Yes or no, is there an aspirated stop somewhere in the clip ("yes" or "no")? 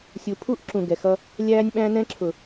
yes